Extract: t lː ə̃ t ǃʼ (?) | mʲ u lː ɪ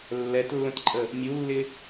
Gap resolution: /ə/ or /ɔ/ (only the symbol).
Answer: ə